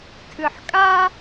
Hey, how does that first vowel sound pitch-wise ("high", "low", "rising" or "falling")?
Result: low